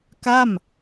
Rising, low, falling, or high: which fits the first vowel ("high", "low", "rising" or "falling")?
falling